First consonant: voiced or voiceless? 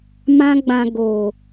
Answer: voiced